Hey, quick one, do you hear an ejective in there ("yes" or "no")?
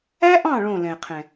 no